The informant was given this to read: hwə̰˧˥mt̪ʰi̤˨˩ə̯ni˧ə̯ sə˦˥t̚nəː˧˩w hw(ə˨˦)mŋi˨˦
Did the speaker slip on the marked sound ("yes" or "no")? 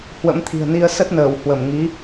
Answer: yes